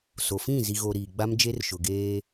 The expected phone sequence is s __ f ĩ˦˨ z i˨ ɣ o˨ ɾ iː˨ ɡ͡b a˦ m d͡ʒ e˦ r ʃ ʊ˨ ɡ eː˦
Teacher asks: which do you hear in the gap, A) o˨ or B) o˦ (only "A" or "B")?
A